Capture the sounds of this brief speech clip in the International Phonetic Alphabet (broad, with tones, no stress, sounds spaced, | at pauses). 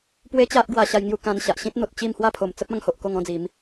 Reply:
p w e˦ t͡ɕ a˦ ʔ ɡ w a˧ ɕ a˧ j ŋ j u˧ k ã˧ n ɕ a˨ ʔ ɕ ĩ˦ t̚ n̪ o˨ t̚ t͡ɕ i˥˧ m h w a˥˧ pʰ o˨˩ m t͡s ə˦ p̚ ã˥˧ ŋ h o˨ ʔ k o˥˧ ŋ ɔ̃˦ d͡z i˨˦ m